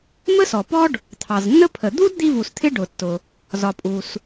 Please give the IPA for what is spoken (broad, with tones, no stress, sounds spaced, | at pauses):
m ə˥ s ɔ˩ p ɔ˥ ɖ | t̪ʰ ɑ˩ z nː ə˥ pʰ ə˩ d̪ u˥ d d̪ i˥ v u˩ s t̪ʰ ɪ˥ ɖ ʊ˩ tː ʊ˩ | z ɒ˩ pʼ u˩ s